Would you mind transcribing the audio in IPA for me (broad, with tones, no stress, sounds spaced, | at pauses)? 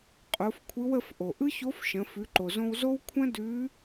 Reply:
qʼ o˩˧ f kʷʰ ɯ˧˥ w ə˧ f ʔ o˩ ʔ ɯ˥ ç o˧˥ f ʃ ə̃˩˧ f ʉ˩˧ ǃ o˩ z õ˧ w z o˥ w kʷʰ ə̃˥ d ʉ˧˥